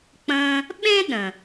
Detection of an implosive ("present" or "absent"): present